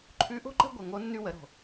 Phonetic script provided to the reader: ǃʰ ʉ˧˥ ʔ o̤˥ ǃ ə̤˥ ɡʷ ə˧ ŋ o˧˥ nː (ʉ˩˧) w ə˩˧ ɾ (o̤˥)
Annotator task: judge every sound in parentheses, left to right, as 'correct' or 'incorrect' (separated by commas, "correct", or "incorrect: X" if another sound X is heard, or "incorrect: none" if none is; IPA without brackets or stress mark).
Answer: incorrect: ʉ˧, incorrect: o̤˩